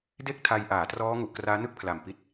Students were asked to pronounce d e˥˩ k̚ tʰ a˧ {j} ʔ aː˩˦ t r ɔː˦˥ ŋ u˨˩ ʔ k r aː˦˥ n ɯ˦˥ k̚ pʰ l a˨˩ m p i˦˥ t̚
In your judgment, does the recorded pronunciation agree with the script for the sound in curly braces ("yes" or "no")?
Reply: yes